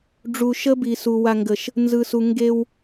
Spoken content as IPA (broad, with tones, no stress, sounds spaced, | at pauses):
ɖ͡ʐ u˨ ʃ ə˦ b i˨ s u˨ w a˨ ŋ ɡ ə˨ ʃ | n z ɯ˨ s u˨ ŋ ɡ e˦ w